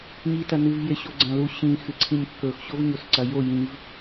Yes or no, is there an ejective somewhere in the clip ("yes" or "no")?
no